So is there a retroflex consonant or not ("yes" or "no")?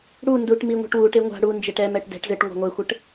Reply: yes